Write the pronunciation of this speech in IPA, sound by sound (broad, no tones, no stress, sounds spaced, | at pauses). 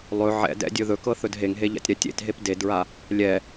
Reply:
lˠ ɵ ʕ ɛ̰ d ɛ̰ dʲ ɵ ð ɵ k ɤ θ ɵ d ɦ e ŋ ɦ e ʎ a̰ tʲ ɾ ɛ tʲ ḛ t ɦ e p d e d ɹ a | lʲ ɛ